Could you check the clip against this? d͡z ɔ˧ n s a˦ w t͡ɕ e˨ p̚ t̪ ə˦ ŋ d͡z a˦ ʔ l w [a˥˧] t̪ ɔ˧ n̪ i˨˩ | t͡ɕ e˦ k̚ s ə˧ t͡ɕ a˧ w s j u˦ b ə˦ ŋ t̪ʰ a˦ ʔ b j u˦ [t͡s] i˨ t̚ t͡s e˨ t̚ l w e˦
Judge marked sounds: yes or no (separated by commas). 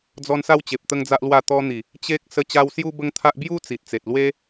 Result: yes, yes